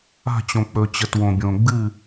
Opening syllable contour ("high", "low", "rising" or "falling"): falling